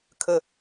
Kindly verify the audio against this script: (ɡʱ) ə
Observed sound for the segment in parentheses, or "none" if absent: kʰ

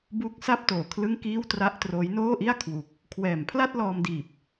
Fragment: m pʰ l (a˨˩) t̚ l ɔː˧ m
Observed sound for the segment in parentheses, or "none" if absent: a˥˩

